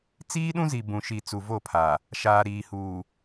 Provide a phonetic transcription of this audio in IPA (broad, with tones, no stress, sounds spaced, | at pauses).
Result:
t͡s iː˦ ɗ ũ˦ z i˨ b ũ˨ ʃ i˨ t͡s u˨ v o˦˨ pʰ a˨ | ʃ aː˨ ɾ iː˨ h uː˨